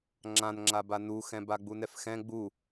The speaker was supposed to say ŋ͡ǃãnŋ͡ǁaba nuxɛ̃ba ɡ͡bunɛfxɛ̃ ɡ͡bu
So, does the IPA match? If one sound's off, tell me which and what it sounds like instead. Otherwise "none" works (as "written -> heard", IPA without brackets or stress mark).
ŋ͡ǃ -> ŋ͡ǁ